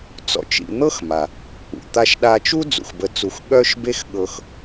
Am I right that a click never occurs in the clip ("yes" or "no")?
yes